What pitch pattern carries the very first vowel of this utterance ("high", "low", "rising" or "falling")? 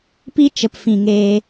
high